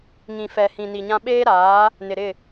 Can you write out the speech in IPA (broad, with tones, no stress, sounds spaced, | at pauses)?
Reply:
ŋ ĩ˨ f ɛ˨ h ĩ˨ n i˨ ɲ ã˦ ɓ eː˦ ɾ aː˨˦ | n ɪ˨ ɾ ɪ˦˨